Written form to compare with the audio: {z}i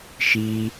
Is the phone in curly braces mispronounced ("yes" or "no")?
yes